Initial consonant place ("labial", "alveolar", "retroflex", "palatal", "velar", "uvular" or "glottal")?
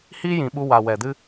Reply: glottal